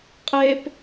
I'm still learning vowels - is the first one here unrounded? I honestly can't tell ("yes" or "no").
yes